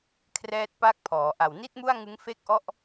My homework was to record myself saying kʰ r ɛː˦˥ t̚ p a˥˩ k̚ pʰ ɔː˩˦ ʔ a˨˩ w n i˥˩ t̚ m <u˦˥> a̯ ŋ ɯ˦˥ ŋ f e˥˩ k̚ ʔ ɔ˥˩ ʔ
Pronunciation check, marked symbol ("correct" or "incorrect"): incorrect